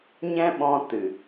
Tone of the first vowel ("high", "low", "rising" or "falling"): high